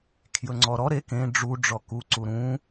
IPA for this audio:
kʰ j ɵ ŋ͡ǀ ɔ ɾ ɔ ɾ e k ẽ ɖ͡ʐ u ɖ͡ʐ ɔ k u ǀ u ɾ ũ

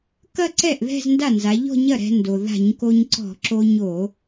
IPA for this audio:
k ɐ˥˧ ǀ ɛ˥˩ ʔ ð ɛ̤˥˧ z n d a˥˩ n z a˩˧ ʎ ɔ̤˥˧ ɲ ɐ˥˩ ɾ ɛ̤˧ n d o˩ ð a̤˧˩˧ ɲ k o˧ ɲ ǀ ɔ̤˧˩˧ ǁ o˧ ɲ o˧˩˧

